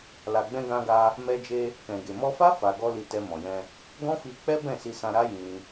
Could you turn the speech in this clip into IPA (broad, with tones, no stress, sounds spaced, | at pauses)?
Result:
l a˨ ɡ͡b ɛ̃˧ ɡ ã˧ ɡ a˧ | m ɛ˧ d͡ʒ e˧ | k ɛ̃˨ ɡ e˨ m ɔ˧ f a˦ f a˧ ɡ ɔ˦ l i˧ t ɛ˧ m ɔ̃˨ j ɛ̃˧ | ɡ ɔ̃˦ f i˧ k͡p ɛ˦ b ɛ̃˦˨ s i˧ s ã˧ ɾ a˦ j ĩ˧